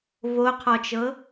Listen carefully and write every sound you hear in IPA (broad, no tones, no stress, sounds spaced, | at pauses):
v o qʰ ɔ t͡ʃ ɤ